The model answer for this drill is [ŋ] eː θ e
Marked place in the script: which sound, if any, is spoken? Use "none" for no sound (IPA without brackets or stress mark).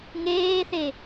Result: ŋ